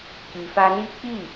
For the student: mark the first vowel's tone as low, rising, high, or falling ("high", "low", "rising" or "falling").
low